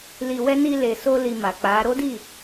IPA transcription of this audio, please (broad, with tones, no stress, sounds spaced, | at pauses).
l i˧ w ɛ˦ n i˧ l e˨ s o˧ l i˧ m a˨ k͡p a˨˦ ɾ o˦ d i˦˨